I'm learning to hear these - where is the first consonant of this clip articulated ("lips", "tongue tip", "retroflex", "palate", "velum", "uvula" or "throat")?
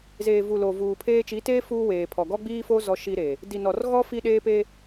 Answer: tongue tip